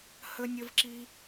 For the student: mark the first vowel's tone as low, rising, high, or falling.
high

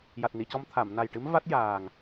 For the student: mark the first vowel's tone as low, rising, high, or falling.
low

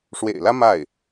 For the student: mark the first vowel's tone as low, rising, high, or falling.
low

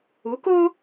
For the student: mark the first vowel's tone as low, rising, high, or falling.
rising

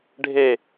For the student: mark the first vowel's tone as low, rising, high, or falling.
falling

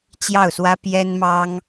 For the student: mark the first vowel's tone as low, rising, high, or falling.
falling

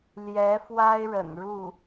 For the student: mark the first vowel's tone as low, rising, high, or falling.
rising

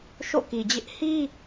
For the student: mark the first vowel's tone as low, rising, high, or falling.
falling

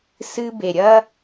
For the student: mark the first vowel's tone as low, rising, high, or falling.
high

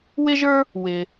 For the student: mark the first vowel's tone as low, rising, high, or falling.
high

